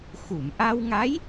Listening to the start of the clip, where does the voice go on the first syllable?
low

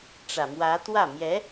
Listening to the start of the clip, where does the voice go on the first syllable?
low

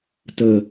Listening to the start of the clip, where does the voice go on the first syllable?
high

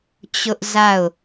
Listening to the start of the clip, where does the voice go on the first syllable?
high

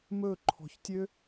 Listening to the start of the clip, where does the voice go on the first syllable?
falling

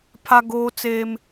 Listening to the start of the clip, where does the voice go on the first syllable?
high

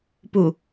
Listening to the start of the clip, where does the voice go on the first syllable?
low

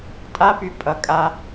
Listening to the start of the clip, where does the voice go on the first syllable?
high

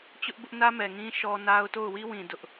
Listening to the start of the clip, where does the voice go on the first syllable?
high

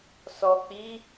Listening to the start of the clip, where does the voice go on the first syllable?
low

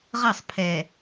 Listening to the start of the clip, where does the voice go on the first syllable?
falling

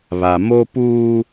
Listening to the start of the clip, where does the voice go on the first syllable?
low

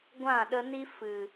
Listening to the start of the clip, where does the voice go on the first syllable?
falling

